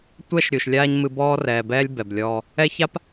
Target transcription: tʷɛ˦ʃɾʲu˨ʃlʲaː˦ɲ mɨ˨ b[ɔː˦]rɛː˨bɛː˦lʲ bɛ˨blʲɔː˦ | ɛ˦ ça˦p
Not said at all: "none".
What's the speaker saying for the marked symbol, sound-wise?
ɔː˦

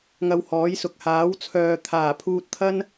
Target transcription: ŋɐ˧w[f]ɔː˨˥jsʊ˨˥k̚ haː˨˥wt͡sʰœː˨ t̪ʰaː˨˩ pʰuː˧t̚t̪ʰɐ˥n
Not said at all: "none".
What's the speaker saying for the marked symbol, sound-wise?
h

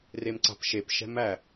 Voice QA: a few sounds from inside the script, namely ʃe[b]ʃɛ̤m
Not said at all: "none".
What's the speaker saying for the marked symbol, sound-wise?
p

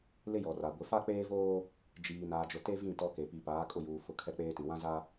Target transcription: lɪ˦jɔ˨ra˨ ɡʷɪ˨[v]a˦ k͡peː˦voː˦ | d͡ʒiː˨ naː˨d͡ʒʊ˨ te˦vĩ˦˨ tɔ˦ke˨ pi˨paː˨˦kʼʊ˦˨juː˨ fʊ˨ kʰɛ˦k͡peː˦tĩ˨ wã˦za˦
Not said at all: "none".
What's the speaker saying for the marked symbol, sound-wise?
f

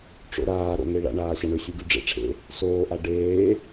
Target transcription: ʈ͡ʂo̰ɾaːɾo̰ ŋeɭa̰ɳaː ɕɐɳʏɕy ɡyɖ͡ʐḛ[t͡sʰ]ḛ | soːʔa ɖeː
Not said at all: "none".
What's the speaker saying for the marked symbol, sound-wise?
ʈ͡ʂʰ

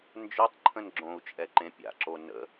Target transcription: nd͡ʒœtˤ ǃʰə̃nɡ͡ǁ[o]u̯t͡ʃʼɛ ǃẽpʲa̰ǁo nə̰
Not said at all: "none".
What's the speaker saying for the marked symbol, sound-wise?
õ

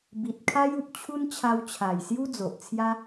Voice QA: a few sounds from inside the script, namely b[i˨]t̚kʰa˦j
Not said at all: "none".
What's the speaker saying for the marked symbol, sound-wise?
i˨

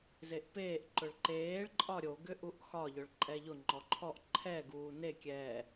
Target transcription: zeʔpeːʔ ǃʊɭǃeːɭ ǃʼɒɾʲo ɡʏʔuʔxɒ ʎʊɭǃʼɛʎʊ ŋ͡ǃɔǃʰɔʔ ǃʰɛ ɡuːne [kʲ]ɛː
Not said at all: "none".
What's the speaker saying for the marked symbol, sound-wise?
kʲ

